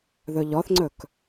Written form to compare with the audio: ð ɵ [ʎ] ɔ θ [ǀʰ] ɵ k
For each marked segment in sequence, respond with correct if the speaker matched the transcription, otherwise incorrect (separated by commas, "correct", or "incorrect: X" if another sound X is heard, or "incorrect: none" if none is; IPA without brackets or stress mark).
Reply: correct, incorrect: ŋ͡ǀ